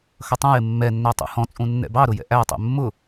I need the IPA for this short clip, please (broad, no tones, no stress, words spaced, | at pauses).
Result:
xʌtˤũjɪ mːɛnːæ tˤṵhɔ̃t͡sʼũ nːɛ̰bɑɾʊ jɛ̰ʔætˤɛ̰ mːʊ